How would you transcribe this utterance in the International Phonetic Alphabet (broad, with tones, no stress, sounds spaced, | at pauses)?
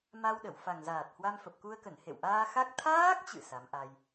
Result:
m a˧ w ɗ ə˧˩ w f a˨˩ ŋ z aː˨˩ t̚ h w a˧ m f ə˨˩ p̚ k u˧ ə̯ k ə˧˩ n h ḛ˧˨ w ʔ aː˧ x a˦˥ k̚ t̪ʰ aː˦˥ k̚ t͡ɕ ɨ̰˧˨ s a˨˦ m ʔ a˧ j